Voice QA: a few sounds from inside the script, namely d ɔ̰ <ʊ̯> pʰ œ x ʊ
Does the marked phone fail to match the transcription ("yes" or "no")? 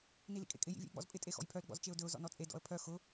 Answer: yes